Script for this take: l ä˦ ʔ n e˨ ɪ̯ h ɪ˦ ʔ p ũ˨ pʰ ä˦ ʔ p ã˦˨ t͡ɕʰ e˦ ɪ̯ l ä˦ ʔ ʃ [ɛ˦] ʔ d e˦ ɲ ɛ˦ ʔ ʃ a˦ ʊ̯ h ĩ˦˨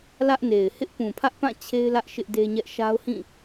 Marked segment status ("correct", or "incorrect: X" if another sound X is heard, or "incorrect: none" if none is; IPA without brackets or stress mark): incorrect: ɪ˦